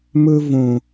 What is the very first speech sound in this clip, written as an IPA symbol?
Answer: m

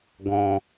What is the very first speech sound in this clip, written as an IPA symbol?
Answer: ɡ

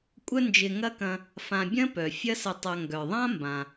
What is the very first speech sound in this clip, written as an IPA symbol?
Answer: kʷʼ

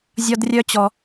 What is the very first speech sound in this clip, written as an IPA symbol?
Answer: zʲ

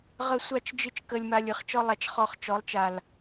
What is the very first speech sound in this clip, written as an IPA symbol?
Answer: ʁ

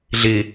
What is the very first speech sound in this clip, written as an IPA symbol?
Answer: ɮ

